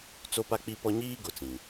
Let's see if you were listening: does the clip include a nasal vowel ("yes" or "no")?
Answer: yes